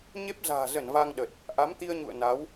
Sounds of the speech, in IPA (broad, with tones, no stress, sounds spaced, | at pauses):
ɲ e˦˥ p̚ z a̤ː˨˩ z ə˧˩ n v a˧ ŋ ɗ ə˨˩ t̚ | ʔ a˨˦ m t̪ i˧ ə̯ ɲ ṵ˧˨ ə̯ n a˨˦ w